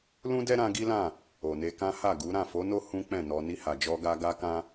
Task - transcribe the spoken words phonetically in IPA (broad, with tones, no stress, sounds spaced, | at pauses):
l ũ˦ d ɛ˦ ɾ ã˧ ɡ i˦ l ã˦˨ | o˨ n e˧ k ã˦ h a˦˨ ɡ u˨˦ ɾ ã˦˨ f o˨˦ n o˦ h ũ˦ k͡p ɛ̃˦˨ n ɔ˧ n i˧ h a˨ d͡ʒ ɔ˧ ɡ a˧ ɡ a˦ k ã˦